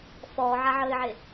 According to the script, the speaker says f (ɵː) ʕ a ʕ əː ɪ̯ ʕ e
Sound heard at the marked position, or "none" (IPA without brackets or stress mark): ɔː